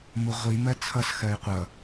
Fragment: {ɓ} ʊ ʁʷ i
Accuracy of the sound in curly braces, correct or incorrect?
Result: incorrect: m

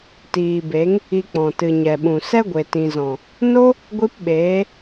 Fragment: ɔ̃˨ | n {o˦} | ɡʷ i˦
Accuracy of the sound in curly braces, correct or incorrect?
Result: correct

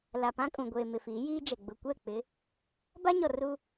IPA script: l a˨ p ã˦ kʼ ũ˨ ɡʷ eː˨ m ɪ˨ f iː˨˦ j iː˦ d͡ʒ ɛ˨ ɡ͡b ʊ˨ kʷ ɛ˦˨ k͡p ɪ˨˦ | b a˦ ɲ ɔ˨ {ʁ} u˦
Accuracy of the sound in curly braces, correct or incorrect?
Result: incorrect: r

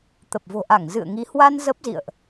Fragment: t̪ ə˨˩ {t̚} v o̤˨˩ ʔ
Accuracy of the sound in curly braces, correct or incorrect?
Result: incorrect: p̚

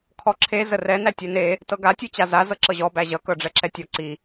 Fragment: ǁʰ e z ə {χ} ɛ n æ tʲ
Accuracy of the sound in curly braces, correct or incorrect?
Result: incorrect: r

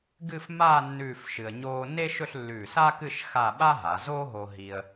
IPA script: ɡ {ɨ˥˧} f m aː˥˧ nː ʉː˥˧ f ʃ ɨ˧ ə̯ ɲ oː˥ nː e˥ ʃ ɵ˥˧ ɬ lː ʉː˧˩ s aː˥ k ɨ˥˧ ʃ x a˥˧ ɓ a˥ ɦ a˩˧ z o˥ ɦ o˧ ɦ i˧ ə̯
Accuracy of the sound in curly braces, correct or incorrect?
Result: correct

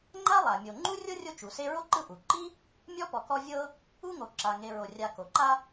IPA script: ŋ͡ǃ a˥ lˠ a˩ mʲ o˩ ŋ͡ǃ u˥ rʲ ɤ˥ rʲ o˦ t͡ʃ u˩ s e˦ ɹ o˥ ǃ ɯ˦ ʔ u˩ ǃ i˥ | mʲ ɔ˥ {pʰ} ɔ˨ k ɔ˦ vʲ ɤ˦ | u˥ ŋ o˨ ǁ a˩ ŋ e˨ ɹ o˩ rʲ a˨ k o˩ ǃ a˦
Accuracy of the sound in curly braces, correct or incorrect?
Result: incorrect: p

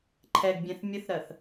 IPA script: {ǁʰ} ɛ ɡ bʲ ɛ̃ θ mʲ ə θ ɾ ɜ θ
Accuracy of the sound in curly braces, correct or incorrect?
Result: incorrect: ǃʰ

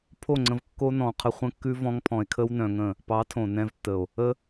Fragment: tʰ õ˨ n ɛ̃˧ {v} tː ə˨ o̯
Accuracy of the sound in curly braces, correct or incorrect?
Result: correct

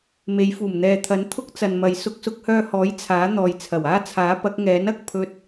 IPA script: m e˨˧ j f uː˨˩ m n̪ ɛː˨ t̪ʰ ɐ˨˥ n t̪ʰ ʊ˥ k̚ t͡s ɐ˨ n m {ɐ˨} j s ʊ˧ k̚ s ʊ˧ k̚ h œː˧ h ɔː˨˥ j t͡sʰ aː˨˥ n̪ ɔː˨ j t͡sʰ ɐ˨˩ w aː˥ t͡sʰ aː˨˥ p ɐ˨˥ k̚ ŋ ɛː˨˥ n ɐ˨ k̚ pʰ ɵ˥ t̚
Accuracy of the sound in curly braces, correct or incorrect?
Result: correct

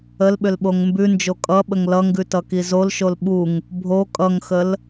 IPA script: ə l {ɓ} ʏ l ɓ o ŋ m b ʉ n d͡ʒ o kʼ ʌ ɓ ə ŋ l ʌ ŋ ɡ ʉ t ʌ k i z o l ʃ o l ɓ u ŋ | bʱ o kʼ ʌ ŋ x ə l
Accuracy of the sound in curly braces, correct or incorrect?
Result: correct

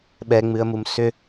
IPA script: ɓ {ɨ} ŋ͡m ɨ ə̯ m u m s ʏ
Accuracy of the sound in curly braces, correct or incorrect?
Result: incorrect: ɛ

